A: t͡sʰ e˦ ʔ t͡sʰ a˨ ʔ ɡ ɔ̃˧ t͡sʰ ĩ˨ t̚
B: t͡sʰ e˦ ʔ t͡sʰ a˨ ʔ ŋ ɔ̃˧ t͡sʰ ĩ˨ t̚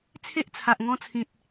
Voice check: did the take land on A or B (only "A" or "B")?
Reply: B